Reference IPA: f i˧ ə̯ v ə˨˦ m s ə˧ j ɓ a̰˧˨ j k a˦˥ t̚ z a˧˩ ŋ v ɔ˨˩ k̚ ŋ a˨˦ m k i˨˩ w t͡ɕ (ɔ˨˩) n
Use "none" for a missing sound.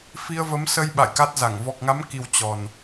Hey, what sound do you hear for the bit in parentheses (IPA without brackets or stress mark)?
ɔ˨˩